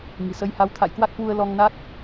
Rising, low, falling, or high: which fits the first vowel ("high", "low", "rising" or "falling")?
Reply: low